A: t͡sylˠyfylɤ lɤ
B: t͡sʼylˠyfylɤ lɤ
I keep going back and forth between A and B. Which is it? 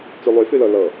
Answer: A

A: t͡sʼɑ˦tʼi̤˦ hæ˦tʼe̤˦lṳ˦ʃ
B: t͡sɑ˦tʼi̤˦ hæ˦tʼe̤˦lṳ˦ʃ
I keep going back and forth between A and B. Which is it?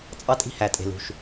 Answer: A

